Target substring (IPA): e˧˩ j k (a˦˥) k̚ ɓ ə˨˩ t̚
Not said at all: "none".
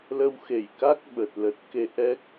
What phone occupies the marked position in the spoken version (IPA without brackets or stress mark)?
a˦˥